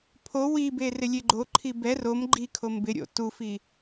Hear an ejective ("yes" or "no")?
no